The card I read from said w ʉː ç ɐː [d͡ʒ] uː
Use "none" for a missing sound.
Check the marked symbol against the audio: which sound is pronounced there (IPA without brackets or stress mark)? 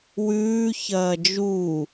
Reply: d͡ʒ